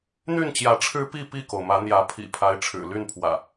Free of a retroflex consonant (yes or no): no